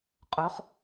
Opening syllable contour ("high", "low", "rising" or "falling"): rising